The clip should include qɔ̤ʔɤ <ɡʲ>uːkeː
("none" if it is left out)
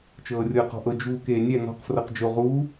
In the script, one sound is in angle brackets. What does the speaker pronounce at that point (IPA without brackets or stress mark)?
d͡ʒ